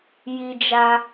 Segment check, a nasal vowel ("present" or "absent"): absent